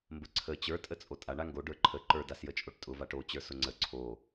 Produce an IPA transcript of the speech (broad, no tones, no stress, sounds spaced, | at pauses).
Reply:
m b ə ǀʰ ə t͡ɕ ə˞ tʼ ə t͡sʼ o tʼ a ɳ a ŋ ɡ o ɖ ə˞ ǃʰ ə ǃ ə˞ d a s j ə t͡ʃʼ o ʈ tʼ ʊ v a ʈ o t͡ɕ ə˞ s ʊ ŋ͡ǀ ə ǀʰ o